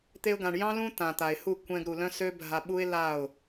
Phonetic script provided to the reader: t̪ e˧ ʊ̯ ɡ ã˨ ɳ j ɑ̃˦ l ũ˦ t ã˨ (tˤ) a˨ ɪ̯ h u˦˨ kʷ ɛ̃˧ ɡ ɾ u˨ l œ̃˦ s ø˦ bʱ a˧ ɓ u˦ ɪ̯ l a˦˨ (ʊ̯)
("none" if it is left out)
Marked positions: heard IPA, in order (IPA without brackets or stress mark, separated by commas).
t̪, ʊ̯